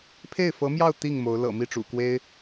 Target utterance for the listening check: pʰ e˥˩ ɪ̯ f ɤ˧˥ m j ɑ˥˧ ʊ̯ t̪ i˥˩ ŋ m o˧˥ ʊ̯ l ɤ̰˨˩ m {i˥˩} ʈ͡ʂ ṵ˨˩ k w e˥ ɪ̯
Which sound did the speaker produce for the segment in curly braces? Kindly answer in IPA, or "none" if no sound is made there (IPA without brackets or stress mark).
i˥˩